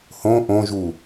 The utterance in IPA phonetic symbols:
h õ ʔ õ ʒ u

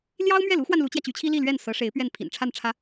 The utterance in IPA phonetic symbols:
l j ɑ˥ ʊ̯ m ɥ ɛ˥˩ l u˧˥ x w a˧ n l u˧˥ t͡ɕ j ä˧ t͡ɕ y˧˥ t͡ɕʰ i˥ l i˥˧ l ɥ ɛ˥˩ n s ɤ˧˥ ʂ e˧˥ ɪ̯ p ɥ ɛ˥˩ n pʰ ḭ˨˩ n ʈ͡ʂʰ a˥˩ n ʈ͡ʂʰ ä˧˥

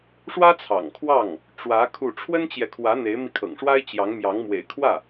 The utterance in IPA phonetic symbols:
ʂ w ä˥ t͡sʰ ɑ̰˨˩ ŋ kʰ w ɑ˥˩ ŋ | ʈ͡ʂ w ä˧˥ kʰ u˥˩ ʈ͡ʂʰ w ə˥ n t͡ɕ j ɛ˨ kʰ w ä˧˥ n̪ e˧˥ ɪ̯ m i˧ kʰ ɤ̰˨˩ ŋ ʂ w a˥ ɪ̯ t͡ɕ j ɑ˧˥ ŋ m j ɑ˧˥ ŋ m w ḛ˨˩ ɪ̯ kʰ w ä˥˩

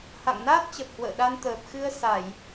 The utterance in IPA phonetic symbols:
h a̰˧˨ ŋ n aː˦˥ t̚ t͡ɕ ə˨˩ p̚ h w ə̰ː˧˨ ɗ a˧ n t̪ əː˨˩ p̚ x ɨ˧ ə̯ s a˧˩˨ j

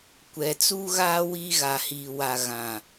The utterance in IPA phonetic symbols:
kʷ ɛ˨ t͡s u˦ ɣ aː˦ w iː˦ ɣ a˨ h iː˨ w a˨ ɣ ã˨

